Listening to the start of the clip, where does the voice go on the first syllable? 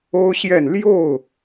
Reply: high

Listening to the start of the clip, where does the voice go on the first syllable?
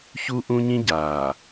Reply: high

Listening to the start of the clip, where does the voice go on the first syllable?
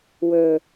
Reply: low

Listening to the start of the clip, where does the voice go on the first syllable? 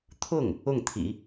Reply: falling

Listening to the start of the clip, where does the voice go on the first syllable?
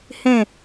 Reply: falling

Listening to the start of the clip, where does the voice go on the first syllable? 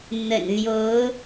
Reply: low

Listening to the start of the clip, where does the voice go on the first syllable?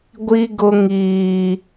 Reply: high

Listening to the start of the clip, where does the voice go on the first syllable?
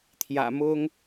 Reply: low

